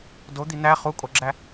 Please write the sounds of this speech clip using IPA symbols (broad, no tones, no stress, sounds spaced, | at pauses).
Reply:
d o d̪ i n̪ æ χ u kʼ o ɡ͡ǁ æ